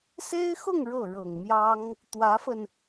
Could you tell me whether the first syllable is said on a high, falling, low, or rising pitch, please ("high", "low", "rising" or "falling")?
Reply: high